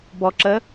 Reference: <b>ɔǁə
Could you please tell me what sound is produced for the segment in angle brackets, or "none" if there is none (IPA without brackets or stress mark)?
b